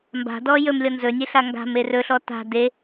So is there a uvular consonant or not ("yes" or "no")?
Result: no